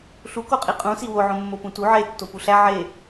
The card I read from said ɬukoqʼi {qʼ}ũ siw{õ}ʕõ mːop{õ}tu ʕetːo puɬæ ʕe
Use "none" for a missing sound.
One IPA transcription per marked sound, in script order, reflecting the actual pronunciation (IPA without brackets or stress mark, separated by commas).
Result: qʼ, o, ũ